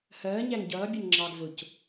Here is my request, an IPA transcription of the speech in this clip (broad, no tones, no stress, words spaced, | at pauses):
hɜː ɲæŋɟʌː bʲənŋ͡ǁɑːɡ vʊc